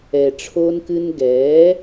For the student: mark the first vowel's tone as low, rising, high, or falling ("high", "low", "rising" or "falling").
low